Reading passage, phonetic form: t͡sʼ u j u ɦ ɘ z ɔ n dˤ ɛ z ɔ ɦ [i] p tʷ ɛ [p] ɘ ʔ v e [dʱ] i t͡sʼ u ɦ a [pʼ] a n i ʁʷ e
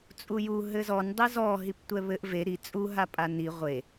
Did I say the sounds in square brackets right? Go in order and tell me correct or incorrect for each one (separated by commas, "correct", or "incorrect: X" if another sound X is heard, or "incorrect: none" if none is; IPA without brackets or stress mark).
correct, incorrect: β, incorrect: ɾ, correct